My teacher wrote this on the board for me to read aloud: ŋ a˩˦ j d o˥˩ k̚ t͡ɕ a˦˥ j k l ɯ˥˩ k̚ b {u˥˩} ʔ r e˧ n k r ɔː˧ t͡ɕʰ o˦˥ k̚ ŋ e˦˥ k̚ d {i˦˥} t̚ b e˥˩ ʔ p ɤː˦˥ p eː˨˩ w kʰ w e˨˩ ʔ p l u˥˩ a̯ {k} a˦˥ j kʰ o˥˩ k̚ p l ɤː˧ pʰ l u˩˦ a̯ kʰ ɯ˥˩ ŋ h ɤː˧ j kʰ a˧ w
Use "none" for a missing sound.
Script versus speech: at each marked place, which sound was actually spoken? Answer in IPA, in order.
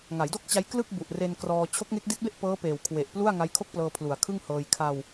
u˨˩, i˦˥, ŋ

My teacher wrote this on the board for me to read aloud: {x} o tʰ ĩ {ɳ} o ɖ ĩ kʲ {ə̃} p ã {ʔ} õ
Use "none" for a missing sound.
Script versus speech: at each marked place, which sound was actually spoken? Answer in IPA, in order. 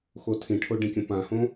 x, ʈʰ, ə̃, h

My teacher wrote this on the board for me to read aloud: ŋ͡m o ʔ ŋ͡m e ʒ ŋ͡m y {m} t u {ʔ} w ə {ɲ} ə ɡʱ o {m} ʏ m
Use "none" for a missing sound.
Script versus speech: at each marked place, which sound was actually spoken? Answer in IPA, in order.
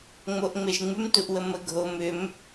m, ʔ, m, m

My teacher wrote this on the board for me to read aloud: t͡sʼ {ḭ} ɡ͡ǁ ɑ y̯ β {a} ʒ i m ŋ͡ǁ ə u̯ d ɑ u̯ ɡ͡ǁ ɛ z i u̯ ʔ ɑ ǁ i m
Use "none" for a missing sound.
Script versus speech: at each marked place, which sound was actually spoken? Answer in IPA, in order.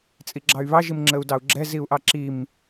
i, ɑ

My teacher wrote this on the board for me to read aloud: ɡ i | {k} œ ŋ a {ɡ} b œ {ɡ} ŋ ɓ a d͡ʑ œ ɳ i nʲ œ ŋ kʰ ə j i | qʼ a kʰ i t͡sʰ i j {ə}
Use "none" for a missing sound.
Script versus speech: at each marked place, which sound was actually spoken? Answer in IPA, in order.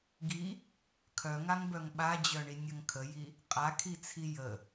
kʰ, ŋ, none, ə

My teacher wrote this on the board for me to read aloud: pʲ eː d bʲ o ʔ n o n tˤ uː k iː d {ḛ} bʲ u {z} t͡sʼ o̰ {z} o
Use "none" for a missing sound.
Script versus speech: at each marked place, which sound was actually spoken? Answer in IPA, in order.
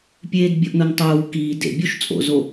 ḛ, ʃ, z

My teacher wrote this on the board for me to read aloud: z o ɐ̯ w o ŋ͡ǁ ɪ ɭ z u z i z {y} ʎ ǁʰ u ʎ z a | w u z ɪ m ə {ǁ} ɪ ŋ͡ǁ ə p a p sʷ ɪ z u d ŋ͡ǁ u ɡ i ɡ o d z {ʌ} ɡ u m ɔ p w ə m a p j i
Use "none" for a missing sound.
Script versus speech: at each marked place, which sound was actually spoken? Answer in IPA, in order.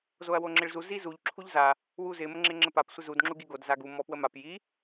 u, ŋ͡ǁ, a

